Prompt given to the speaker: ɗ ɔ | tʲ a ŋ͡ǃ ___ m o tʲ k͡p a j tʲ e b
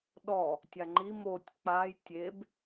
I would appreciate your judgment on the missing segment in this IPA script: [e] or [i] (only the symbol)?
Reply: i